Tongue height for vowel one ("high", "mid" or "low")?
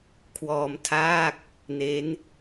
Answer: mid